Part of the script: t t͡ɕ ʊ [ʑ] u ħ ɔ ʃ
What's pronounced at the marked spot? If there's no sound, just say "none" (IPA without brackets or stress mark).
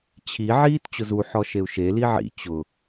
z